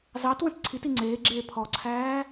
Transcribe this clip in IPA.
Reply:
z ɑ t w ə̃ t ǀʰ i t i ŋ͡ǀ eː ɡ͡ǁ eː pʰ ɔ ǀʰ æː

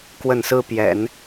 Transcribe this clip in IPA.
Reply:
k w ə˥˩ n s ɹ̩˥ p j ɛ̰˨˩˦ n

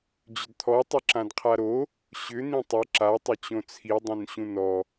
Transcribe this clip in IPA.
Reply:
d͡ʑ ʏ d t̪ʰ ɔ tˤ ɵ ǁ ã d qʰ a ɾ o | ɕ ʏ n̪ ĩ tˤ ɵ ǁ a tˤ ʏ t͡ɕ õ t͡sʰ i dˤ õ n ɕ ũ n ɔ

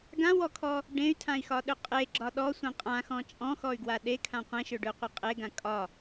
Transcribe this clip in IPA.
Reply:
ɡ ã w ɔ kʰ ɔ | ɖ ẽ y̯ tʰ ã i̯ x ɒ ɗ ø qʼ e ɡ͡ǁ ɒ ɗ ɔ sʷ ẽ qʼ ã x ɔ̃ t͡ʃʼ ɔ̃ x ɔ y̯ ɡ w a ɗ e kʰ ã qʷ ẽ ʃ ø ɖ ø qʷ e qʼ e ɡ ã kʼ ɒ

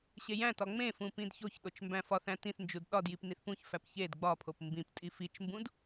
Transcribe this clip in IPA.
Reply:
ɕ e j æ̃ t ɒ ŋ͡m ẽ f ũ p ĩ d ç o ç ɗ o t͡ʃ m b æ̃ f ɒ θ æ̃ t ĩ θ n d͡ʒ u d ɗ ɒ d j i p n i θ p ũ ç f æ p ç e d ɡ͡b ɒ pʰ o p m b ĩ p tʼ i f i t͡ʃ m b ũ d

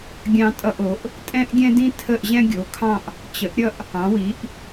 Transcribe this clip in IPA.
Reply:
ɡʲ ɑ̃˥ tʼ ʌ˥˧ ʔ o˨˥ ʔ | tʼ ɛ̃˥ ʔ ɡʲ ɛ̃˥ d ĩ˥ tʰ ə˥˧ ʔ ʑ ɛ̃˥ ɡʲ o˨˥ kʰ ɑ̃˥˧ ʔ | t͡ɕ ə˨˥ ʔ ɾʲ ʌ˥˧ ʔ | ɑ̃˨˥ w i˨˥ ʔ

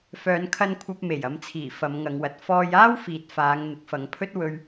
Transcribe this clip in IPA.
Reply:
f œː˨˧ n kʰ ɐ˧ n kʷʰ ɐ˧ p̚ m e˨˩ j ɐ˨˧ m t͡sʰ iː˨˩ f ɐ˨˧ m ŋ ɐ˨˧ ŋ w ɐ˨ t̚ f ɔː˧ j aː˥ w f iː˨ t̚ f aː˨˧ ŋ n̪ ɪ˨˥ k̚ f ɐ˨˧ ŋ pʰ ɵ˥ t̚ w ɵ˧ ɥ

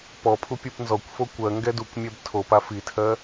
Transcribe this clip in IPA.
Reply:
p ɔ pʰ u pʲ u p n z ɔ kʷ f o kʷ ɜ ŋ ɡ ɛ d u kʷ mʲ ɛ b tʰ o p a f i tʰ ɜ

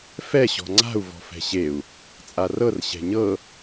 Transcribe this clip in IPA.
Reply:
f ɛ ɕ ɔ̤ ŋ͡ǀ a̤ u̯ v ɔ̤ f ɛ̤ ɕ e u̯ | t͡sʼ a r ɤ r ɕ ɛ̤ ɲ ɤ

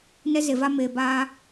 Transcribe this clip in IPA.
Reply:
n ɛ˦ z e˨ v a˦ m eː˨ b aː˦

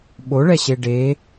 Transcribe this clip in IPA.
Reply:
ɓ o ɭ ɛ ɕ e ɖ e

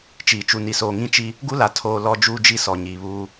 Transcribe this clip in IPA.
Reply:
t͡ʃ iː˨ t͡ʃ u˨ n i˨ s oː˨ ŋ ĩ˦˨ t͡ʃ i˦ | ɡ u˦ l a˨ tʰ oː˨ l ɔ˦ d͡ʒ uː˦ d͡ʒ i˦ s ɔ˨ ɲ iː˨ β uː˦

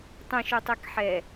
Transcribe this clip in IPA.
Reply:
tˤ ə̃ ʃ o tˤ ɛ k ħ ɛ

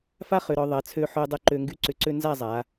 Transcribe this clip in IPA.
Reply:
f a˥ χ ʏ˩˧ ɾ ɔ˩˧ ðˤ ɐ˩˧ t͡sʰ ø˧ ħ ø˧ dˤ ʏ˧ ǃ ø˧ ŋ ɡ y˥ ǀ ʏ˧˩ ǀ ø˥ n z a˥˧ zˤ a˩˧

